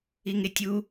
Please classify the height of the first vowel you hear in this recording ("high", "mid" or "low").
high